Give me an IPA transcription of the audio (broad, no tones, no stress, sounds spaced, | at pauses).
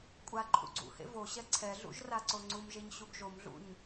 kʷʼ a ǃʰ ṵ ɡ͡ǀ ṵ h ḛ v o ɕ ɛ ǀʰ ɛ ɮ ṵ ʒ r a ǀ o ŋ͡ǀ u m ʒ e ɲ ɕ u ɡ ʒ o m ɮ ṵ ɲ